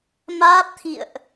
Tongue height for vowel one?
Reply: low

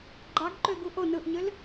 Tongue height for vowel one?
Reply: low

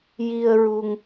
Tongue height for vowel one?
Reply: high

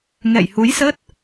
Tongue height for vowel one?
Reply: mid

